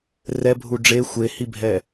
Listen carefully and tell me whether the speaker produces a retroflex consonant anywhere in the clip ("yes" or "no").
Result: yes